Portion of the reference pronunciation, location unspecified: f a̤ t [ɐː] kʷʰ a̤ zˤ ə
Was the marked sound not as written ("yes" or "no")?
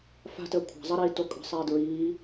yes